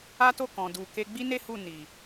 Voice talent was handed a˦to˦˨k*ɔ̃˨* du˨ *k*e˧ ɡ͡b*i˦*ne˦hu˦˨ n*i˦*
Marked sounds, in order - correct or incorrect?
correct, correct, correct, incorrect: i˨

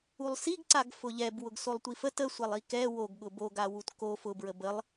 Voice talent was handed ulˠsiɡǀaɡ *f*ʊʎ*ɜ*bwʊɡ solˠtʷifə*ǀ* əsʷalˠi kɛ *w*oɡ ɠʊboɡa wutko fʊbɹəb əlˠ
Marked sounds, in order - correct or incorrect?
correct, incorrect: ɛ, incorrect: t, correct

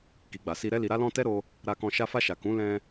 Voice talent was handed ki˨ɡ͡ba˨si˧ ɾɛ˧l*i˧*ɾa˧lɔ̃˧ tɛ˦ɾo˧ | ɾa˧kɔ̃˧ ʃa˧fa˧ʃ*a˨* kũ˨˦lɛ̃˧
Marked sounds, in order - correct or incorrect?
incorrect: i˨, correct

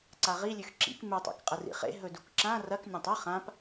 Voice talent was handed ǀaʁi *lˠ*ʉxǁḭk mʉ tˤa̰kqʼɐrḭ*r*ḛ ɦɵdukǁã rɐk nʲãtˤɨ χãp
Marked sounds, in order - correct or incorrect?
incorrect: lʲ, incorrect: χ

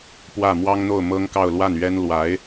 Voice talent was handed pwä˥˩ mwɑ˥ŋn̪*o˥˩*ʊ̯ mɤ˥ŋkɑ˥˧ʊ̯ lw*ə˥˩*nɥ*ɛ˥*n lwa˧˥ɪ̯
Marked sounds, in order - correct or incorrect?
correct, incorrect: a˥˩, correct

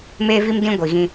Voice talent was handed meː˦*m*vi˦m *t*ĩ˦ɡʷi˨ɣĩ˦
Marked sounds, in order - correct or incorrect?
incorrect: none, incorrect: d

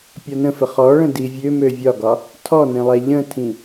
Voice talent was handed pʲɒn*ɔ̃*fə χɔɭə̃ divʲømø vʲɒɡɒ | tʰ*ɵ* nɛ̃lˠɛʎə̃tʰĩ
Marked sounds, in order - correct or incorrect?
incorrect: ə̃, incorrect: ɔ

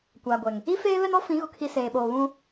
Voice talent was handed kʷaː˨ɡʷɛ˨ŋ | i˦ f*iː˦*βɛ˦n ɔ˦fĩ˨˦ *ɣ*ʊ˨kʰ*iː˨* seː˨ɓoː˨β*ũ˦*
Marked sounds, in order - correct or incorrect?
incorrect: eː˦, correct, incorrect: i˨, correct

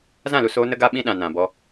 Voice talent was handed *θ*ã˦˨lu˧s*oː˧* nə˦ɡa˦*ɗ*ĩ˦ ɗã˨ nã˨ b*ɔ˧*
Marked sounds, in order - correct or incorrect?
incorrect: z, correct, incorrect: ɓ, correct

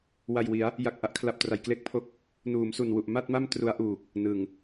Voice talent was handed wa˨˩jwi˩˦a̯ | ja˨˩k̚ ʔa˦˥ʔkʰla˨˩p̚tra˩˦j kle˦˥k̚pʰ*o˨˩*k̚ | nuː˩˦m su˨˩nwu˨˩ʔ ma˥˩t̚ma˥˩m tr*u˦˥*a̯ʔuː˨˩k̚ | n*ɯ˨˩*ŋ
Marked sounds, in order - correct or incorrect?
incorrect: o˦˥, correct, correct

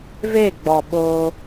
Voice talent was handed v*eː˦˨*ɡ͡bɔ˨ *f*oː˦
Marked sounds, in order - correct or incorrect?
correct, incorrect: ɓ

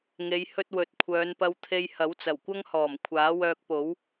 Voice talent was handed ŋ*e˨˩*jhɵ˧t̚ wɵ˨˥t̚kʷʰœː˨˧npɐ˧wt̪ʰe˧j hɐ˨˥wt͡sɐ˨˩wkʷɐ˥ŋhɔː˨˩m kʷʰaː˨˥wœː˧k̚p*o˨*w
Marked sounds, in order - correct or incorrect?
incorrect: e˨˧, incorrect: o˨˥

